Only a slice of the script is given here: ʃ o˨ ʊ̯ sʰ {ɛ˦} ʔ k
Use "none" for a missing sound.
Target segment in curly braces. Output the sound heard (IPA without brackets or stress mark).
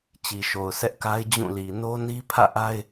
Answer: ɛ˦